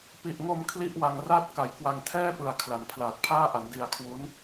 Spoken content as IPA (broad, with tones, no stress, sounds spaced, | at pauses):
p i˨˩ ʔ ŋ o˧ m kʰ l i˥˩ ʔ w a˧ ŋ r aː˥˩ t̚ k a˩˦ j k w a˧ ŋ tʰ ɛː˥˩ p ɯ˨˩ a̯ kʰ l a˨˩ n pʰ l aː˨˩ t̚ pʰ aː˥˩ ʔ a˩˦ n d i˧ a̯ kʰ w u˦˥ n